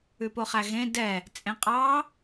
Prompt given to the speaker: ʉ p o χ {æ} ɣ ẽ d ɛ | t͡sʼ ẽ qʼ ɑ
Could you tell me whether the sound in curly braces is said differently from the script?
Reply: no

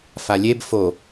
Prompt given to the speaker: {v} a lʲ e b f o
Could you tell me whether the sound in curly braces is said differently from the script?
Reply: yes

